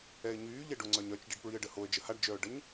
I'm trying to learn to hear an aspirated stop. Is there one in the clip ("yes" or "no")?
no